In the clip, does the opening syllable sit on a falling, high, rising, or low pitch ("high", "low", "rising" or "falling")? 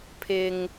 low